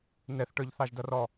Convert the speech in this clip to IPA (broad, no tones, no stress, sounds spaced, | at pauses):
n ɛ θ ʈ ə˞ ʎ θ ɑ ʒ d ʌ r ɔ